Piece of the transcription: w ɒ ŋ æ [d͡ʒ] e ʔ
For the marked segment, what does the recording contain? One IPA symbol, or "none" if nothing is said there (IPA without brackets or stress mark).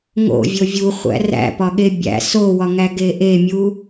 ɡ